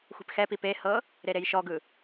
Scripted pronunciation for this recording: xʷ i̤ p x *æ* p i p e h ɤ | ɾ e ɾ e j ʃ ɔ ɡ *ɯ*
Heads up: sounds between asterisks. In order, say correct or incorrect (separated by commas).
incorrect, correct